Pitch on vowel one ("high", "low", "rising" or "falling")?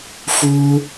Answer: high